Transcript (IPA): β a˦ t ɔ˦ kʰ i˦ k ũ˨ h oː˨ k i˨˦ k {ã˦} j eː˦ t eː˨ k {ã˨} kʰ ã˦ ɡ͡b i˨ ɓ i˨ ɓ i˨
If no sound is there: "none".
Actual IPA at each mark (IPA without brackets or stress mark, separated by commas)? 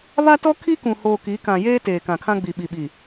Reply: ã˨, ã˨